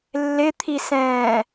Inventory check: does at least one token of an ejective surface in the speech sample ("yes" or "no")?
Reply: no